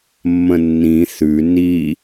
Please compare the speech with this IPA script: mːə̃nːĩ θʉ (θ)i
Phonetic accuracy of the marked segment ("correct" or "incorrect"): incorrect